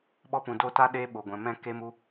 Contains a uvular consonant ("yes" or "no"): no